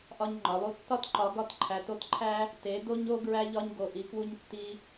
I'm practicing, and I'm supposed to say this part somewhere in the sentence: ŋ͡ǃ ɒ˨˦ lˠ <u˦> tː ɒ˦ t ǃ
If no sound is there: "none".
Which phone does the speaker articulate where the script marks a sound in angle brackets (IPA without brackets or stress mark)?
u˦